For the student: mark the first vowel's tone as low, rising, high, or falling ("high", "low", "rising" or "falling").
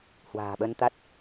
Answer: low